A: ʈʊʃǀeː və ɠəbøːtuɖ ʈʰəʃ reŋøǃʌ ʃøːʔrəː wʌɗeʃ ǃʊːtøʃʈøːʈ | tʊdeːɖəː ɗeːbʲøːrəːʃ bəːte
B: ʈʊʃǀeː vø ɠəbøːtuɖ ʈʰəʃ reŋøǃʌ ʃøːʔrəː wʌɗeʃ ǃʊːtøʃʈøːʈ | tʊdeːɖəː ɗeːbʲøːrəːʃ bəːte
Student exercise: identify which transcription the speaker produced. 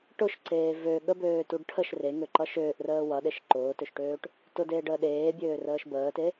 B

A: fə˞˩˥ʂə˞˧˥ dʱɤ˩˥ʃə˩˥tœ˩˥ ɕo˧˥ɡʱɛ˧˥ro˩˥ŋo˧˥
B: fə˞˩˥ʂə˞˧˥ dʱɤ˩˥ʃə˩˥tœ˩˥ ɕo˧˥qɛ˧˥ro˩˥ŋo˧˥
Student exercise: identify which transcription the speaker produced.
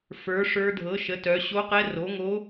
B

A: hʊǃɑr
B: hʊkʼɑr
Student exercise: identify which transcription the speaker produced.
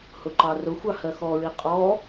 A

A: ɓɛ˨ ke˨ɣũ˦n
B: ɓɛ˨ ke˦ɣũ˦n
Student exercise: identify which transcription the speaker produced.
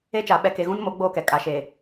A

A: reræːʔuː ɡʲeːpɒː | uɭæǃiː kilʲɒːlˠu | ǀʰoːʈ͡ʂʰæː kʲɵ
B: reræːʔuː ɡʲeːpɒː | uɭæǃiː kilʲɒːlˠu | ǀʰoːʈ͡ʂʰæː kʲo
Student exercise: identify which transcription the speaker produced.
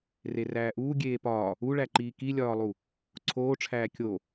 B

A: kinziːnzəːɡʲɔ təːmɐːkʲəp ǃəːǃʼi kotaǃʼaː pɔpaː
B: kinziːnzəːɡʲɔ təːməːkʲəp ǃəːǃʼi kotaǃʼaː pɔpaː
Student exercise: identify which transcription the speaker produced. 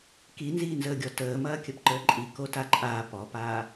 A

